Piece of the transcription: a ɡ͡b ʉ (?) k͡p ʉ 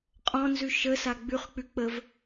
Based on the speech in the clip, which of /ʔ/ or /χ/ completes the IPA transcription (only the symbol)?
χ